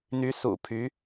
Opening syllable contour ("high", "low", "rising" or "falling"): rising